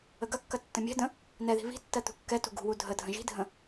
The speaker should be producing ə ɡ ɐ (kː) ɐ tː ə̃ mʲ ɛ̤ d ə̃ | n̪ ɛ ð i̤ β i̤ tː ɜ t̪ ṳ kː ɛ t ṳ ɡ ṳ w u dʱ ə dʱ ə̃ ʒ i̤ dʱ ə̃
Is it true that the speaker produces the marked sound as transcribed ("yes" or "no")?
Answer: yes